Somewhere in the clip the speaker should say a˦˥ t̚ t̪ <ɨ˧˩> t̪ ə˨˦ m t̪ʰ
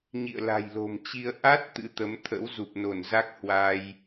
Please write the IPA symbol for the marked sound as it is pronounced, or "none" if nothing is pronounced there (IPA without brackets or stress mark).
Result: ɨ̰˧˥